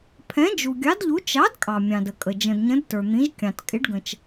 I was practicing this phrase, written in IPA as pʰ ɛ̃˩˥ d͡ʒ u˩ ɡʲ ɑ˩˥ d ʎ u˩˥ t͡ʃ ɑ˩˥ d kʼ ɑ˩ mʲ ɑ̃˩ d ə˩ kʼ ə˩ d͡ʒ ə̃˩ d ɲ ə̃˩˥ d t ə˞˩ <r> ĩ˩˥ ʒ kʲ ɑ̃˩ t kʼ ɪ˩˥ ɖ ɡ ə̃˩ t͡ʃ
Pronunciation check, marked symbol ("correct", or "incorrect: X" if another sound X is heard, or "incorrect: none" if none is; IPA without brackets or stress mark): incorrect: n̪